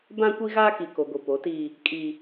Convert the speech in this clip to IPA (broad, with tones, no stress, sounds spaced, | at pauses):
b ã˦ kʷ i˦ ɣ aː˦ k i˨ k o˨ ɡʷ i˨ p o˨˦ t iː˦ | kʼ i˦